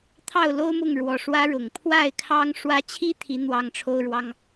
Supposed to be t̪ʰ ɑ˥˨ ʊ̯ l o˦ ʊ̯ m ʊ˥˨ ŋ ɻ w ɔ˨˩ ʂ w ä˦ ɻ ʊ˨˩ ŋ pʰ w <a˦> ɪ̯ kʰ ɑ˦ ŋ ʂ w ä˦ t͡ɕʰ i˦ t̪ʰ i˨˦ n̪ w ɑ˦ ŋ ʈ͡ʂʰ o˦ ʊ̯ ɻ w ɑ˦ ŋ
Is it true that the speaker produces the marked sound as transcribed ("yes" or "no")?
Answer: no